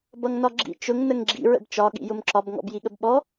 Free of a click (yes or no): no